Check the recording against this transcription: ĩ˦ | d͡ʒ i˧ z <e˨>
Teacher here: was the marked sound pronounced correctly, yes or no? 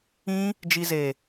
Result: yes